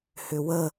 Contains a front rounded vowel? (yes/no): yes